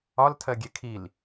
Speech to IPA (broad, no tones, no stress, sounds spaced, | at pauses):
ɒ l tʰ ɜ ɡʲ e kʰ i l